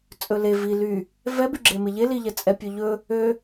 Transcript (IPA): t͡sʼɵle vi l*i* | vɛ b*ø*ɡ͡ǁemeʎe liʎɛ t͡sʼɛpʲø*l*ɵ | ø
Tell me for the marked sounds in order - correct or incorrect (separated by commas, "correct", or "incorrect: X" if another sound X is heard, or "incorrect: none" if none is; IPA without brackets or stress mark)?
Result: incorrect: y, incorrect: y, incorrect: ʎ